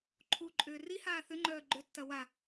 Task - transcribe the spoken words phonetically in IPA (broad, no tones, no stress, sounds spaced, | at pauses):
ǃʰ u ǃʼ ʏː r i h aː θ ʏ ŋ͡ǃ œː ɡ͡ǃ ʏ tː ɐ w a